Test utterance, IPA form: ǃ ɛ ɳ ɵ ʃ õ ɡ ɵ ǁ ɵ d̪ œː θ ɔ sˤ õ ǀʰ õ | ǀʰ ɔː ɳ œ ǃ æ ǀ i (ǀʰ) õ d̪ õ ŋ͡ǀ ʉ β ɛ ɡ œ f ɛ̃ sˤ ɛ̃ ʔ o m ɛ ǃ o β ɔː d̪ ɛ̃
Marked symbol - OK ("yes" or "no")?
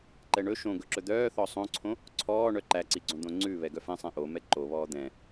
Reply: no